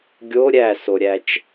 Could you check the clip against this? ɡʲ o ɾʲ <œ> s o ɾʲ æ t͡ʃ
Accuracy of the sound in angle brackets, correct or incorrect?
incorrect